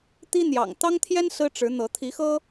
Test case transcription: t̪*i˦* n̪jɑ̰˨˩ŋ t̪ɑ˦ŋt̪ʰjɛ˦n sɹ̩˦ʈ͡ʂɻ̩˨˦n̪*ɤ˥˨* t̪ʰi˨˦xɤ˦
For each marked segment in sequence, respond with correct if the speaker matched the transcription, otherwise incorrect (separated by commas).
correct, incorrect